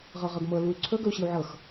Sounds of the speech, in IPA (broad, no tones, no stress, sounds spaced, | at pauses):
ʁ ɤ ʁ ɤ ɡ m ɤ l u y̯ ǀʰ ɵ ɡ ɵ u̯ ɕ i u̯ ʕ ɤ x